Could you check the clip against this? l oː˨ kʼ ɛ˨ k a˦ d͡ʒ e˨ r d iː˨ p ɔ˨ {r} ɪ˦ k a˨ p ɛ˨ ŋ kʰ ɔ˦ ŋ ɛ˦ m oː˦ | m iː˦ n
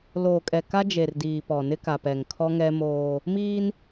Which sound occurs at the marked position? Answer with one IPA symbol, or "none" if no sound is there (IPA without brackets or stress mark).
n